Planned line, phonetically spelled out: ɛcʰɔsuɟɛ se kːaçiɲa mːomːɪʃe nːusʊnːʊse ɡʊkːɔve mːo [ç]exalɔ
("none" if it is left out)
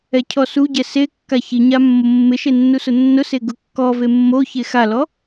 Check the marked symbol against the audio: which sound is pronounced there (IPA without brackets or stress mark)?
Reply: ç